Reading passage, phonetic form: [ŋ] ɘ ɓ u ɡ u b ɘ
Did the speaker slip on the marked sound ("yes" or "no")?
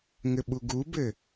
no